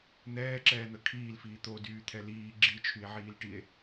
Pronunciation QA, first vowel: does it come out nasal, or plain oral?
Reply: oral